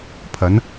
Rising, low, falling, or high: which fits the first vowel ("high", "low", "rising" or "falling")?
rising